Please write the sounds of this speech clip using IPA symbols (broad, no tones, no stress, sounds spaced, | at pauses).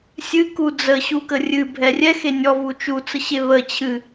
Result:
sʲ ɨ k u d͡z ə ɕ u k ə rʲ ɨ bʱ ɛ rʲ ɛ x e nʲ ɔ v u t͡ʃ u t͡s ə ɕ e β ə t͡ɕʰ ɨ